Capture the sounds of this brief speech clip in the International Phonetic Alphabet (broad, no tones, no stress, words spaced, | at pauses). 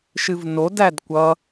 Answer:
ʃɨvno dædkʷʌ